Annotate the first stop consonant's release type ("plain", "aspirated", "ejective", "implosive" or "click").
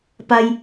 plain